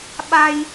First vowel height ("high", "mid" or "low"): low